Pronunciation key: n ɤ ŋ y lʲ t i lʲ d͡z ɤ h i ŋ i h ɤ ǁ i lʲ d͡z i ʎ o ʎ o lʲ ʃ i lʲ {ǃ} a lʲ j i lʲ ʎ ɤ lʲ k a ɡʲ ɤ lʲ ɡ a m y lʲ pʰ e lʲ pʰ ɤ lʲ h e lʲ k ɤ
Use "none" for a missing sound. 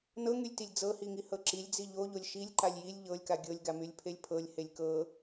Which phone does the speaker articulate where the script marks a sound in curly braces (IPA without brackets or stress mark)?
ǃ